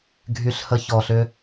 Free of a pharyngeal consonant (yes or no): yes